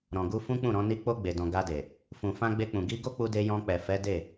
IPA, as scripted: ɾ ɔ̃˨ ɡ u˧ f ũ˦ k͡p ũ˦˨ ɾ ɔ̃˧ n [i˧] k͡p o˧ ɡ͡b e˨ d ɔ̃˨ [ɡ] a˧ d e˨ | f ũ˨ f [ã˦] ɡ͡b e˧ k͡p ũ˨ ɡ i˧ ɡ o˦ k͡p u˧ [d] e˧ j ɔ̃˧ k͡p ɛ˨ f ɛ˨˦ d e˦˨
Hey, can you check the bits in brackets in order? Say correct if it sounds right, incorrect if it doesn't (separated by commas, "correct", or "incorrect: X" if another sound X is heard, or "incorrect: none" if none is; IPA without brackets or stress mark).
correct, correct, incorrect: ã˧, correct